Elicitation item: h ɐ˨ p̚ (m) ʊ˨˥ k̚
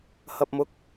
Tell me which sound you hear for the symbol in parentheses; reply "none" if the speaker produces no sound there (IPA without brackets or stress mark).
m